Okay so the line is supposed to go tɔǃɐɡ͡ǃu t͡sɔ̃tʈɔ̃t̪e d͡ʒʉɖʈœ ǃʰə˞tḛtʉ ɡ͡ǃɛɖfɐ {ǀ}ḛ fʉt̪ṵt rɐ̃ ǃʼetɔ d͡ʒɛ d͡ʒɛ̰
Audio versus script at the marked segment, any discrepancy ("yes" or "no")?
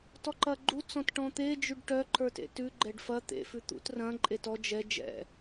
yes